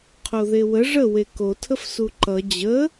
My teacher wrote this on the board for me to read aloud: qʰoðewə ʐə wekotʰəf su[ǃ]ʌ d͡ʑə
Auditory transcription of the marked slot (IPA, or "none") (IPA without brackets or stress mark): ǃ